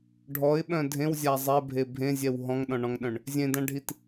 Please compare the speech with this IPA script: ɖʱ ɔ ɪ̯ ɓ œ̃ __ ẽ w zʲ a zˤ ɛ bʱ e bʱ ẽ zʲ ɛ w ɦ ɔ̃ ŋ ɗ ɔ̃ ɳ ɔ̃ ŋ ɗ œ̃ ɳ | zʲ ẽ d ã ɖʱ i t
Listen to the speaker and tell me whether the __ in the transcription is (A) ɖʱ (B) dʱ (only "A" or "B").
B